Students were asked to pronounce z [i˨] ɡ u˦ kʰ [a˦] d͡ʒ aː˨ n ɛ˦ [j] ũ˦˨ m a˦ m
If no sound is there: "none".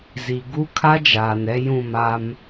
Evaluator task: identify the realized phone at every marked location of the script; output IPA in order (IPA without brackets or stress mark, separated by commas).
i˨, a˦, j